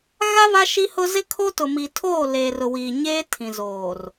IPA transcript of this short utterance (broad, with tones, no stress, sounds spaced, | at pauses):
ɣ a˦ β a˦ ʃ i˦ h ʊ˦ z ɪ˦ kʰ o˦ t ʊ˨ m i˨ tʰ oː˦˨ l eː˨ r ʊ˨ w iː˨ ɲ eː˦ tʰ ĩ˨ z oː˨ r